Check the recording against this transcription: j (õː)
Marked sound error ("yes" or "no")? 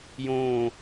no